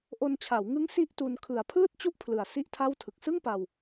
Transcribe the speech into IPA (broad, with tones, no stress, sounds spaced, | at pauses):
ʔ o˧ n t͡ɕʰ a˩˦ w ŋ ɯ˦˥ ŋ s i˥˩ ʔ t u˧ n kʰ ɯ˨˩ a̯ pʰ ɯː˥˩ t̚ t͡ɕ u˥˩ ʔ pʰ l ɯ˨˩ a̯ s i˥˩ ʔ tʰ a˥˩ w tʰ ɯ˨˩ k̚ s ɯ˥˩ ŋ p a˧ w